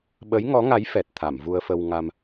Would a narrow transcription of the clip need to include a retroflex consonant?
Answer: no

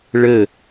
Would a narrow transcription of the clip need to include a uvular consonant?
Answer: no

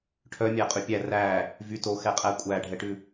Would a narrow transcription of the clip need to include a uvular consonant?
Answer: yes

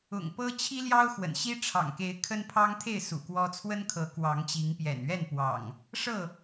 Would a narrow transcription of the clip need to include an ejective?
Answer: no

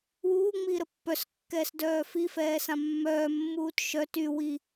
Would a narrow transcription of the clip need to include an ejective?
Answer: no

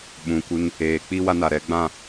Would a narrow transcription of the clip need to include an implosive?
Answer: yes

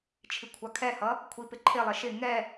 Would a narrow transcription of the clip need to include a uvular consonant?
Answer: no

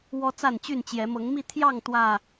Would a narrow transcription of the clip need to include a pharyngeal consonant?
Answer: no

